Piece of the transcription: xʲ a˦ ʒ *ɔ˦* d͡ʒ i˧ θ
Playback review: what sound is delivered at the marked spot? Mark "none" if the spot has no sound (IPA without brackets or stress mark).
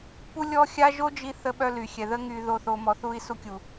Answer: o˦